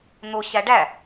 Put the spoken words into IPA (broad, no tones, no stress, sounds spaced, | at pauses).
n̪ o ɕ æ ɖ æ